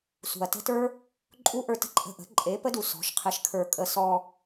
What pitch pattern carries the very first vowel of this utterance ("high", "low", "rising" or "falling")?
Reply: low